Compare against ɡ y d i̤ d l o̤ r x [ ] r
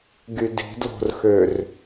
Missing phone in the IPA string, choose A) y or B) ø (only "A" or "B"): B